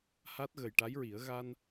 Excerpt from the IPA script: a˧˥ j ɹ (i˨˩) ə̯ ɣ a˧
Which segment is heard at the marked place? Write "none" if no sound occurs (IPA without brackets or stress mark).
i˨˩˦